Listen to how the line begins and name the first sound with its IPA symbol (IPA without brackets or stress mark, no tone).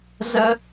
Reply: z